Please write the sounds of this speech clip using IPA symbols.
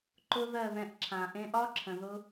ǃʊ˦ðɜ˦˨ ðɛ̃˧ʔǁʰã˨ ʔẽ˧ʔɒ˦ǁʰə̃˨ðʊ˧

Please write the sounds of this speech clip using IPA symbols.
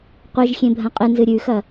qʷɨʒxʲẽ bʱɐ̃qʼɨnzɨ ɾʲʉxɐ

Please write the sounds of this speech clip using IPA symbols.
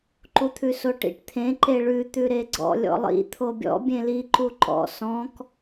ǃut̪ʰʉsoʈḭʈ t̪ʰẽ ǃeɭʉ t̪ʉɾeɡ͡ǀɔ̰ lʲɔ̰lˠḭ t̪ʰobʲɔ̰ bʲẽli ǃuǃɔ̰ sɔ̃k

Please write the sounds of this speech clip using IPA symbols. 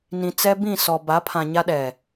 nĩ˨t͡sɛ˦bĩ˦˨sɔ˨ ba˨˦pʰã˨ ɲa˦ɗɛ˨

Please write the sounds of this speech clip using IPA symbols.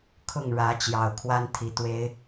kʰʊ˥˨ŋɻä˨˦ t͡ɕjɑ˨˩ʊ̯kʰwa˦n t̪ʰi˨˩t̪we˦ɪ̯

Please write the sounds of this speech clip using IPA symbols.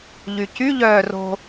ʎycy ʎœːro̤

